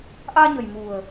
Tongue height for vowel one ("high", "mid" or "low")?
low